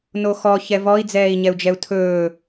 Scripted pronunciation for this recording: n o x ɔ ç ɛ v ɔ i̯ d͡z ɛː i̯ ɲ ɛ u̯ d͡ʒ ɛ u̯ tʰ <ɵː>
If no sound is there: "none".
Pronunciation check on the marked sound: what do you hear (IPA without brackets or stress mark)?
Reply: ɵː